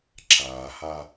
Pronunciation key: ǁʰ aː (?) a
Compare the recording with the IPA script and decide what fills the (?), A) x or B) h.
B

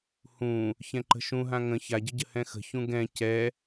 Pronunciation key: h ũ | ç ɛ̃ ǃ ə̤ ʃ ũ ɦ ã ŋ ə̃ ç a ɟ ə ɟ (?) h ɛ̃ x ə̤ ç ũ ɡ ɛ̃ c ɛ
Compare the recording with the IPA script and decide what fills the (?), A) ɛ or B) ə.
B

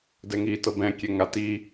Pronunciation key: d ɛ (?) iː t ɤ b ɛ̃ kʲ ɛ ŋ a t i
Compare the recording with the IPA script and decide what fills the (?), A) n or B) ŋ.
B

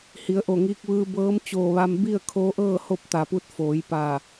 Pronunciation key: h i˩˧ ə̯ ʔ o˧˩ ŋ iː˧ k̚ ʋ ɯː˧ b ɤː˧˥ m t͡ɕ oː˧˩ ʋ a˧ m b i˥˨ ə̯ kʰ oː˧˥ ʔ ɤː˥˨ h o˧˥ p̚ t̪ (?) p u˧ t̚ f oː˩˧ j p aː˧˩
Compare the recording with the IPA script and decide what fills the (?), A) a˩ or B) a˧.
A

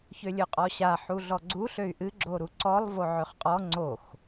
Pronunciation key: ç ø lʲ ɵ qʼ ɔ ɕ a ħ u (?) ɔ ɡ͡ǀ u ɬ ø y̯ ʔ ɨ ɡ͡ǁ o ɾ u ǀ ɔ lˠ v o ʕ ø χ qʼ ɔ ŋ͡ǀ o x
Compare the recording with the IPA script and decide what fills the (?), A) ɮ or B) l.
A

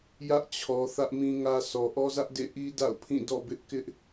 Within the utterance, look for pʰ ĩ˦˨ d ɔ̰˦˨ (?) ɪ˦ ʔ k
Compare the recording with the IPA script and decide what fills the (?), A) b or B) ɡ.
A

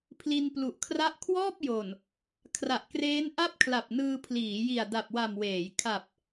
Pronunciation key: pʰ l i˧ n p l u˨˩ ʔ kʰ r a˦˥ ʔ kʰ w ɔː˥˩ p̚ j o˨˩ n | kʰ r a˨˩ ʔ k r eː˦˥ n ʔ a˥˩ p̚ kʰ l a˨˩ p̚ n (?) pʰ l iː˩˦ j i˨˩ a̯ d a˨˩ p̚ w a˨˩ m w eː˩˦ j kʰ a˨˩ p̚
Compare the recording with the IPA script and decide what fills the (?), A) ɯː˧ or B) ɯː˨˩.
A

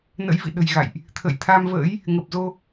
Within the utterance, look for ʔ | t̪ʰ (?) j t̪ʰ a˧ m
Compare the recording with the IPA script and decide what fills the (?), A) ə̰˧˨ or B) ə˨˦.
A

